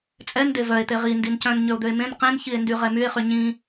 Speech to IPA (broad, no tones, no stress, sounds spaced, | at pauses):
t͡sʼ ɛ n d e v œ e̯ t̪ e ʁ i n d i n c œ̃ n ɲ ø o̯ d̪ ø e̯ m ẽ n q ẽ n ç i e̯ n d y ʁ ɛ m y e̯ χ y ɲ ĩ